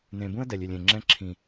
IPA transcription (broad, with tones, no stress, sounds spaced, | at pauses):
n ẽ˨ b ũ˦ ə̯ d ɛ˨ lʲ y˨ lʲ ẽ˨ ŋ͡ǁ ɛ̃˦ ǁʰ ĩ˨